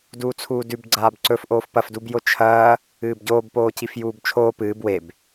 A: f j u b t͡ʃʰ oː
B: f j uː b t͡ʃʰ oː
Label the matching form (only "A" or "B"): B